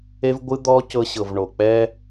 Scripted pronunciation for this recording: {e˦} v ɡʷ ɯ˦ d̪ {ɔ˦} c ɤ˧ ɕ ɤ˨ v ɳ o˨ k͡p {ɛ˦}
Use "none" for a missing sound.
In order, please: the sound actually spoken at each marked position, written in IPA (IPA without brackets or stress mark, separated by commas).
e˦, ɔ˦, ɛ˦